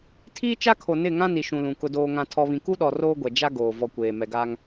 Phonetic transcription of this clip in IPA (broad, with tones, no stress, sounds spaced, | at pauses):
tʰ iː˦ t͡ʃ a˦ kʰ o˨ n ɪ˦˨ ŋ ã˦ n i˨ ʃ ũ˨ l ũ˨ k ʊ˨ d oː˨ ŋ ã˨ tʰ ɔ˨ β ĩ˨ k u˦ ɗ ɔ˨ r oː˦ ɡʷ ɛ˨ d͡ʒ a˦ ɡ oː˨ v ɔ˨ kʷ eː˨ m ɛ˨ ɡ aː˦ ŋ